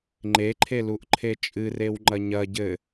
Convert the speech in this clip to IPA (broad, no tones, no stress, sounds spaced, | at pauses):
ŋ͡ǃ e ǃʰ e l u ʔ ǃʰ e t͡ʃʼ ɨ r e w ŋ͡ǃ ɐ ɲ ɐ ɟ ɘ